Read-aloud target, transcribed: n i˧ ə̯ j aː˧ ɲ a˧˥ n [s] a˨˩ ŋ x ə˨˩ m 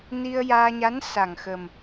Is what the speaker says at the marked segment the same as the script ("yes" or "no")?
yes